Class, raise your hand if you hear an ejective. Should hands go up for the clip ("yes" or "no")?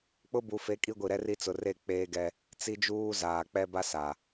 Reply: yes